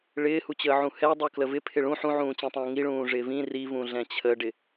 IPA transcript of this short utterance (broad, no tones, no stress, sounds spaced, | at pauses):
ɭ ɪː h u t͡ɕ əː ʕ ũ h ɛ dˤ u k l ə v ɪ pʰ ɪ ɭ ũ ħ ũ ʕ ũː t͡ɕ ĩ tˤ ũː ŋ i ɭ ũː ʐ ɪː v ĩ r i v ũ ɮ ɛ̃ t͡ɕʰ ə ɖ ɪ